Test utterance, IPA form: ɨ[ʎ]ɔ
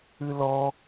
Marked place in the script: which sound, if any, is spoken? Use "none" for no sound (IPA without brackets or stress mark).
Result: l